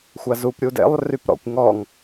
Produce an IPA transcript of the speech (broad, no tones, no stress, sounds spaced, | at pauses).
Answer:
xʷ a z u p ɾʲ u d ḛ lˠ r y p ɾ ɔ̰ kʷ ŋ ɔ ŋ